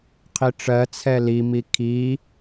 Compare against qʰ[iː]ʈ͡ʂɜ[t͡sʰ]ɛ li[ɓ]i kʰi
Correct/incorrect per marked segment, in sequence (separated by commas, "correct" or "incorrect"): incorrect, correct, incorrect